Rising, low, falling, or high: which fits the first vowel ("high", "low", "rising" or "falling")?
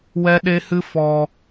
high